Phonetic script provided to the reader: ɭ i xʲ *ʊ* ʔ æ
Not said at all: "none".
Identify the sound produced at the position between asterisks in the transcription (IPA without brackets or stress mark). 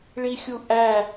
u